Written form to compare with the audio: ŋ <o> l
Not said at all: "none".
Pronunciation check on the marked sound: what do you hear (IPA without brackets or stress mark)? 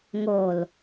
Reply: o